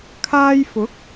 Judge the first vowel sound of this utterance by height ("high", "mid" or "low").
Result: low